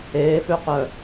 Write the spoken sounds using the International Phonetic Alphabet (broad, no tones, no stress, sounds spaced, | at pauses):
eː f ø q œ